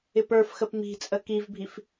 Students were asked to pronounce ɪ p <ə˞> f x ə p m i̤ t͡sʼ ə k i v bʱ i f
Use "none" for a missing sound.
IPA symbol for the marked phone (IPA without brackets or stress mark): ə˞